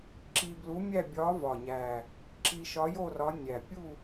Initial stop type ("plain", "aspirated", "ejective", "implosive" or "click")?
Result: click